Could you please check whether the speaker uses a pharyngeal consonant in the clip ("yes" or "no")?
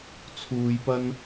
no